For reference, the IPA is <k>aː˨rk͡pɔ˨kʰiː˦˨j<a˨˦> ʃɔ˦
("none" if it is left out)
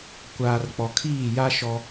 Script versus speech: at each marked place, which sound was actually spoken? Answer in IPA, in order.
kʷ, a˦

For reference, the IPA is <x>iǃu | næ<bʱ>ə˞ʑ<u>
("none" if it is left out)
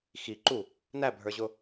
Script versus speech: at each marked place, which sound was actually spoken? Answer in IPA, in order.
x, bʱ, ʊ

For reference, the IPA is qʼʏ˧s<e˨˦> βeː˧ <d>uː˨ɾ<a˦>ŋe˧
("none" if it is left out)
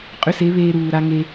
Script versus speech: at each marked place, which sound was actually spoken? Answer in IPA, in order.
e˨˦, ɾ, a˦

